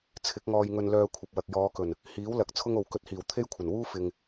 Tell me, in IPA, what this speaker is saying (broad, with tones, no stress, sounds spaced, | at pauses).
t͡sʰ ɪ˨˥ k̚ ŋ ɔː˧ j ŋ ɵ˧ n l œː˧ kʷʰ ɐ˨ p̚ w ɐ˨ k̚ j ɔː˨˧ k ɵ˨˩ n | h iː˨˥ w l ɐ˨˥ k̚ t͡sʰ ʊ˥ ŋ o˨ w k ɵ˧ t̚ h iː˨˩ w t̪ʰ e˥ j kʷʰ ɐ˨˩ n w uː˥ f ɪ˨ ŋ